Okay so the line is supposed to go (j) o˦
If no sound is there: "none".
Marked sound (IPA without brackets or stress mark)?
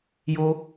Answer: j